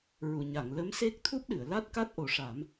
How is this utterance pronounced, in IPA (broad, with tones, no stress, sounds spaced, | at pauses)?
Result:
ɹ u˨˩˨ ɲ a˨˩˨ ŋ l ə˧˥ m s e˦˥ k̚ t̪ʰ u˦˥ p̚ ɗ ɨ˨˩˨ ə̯ l a˦˥ t̚ k a˦˥ t̚ ʔ o˨˩˦ ʂ a˨˩˦ m